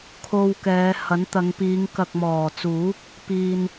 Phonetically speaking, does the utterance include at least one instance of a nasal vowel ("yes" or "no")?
no